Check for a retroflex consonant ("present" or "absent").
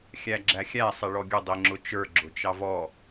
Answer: present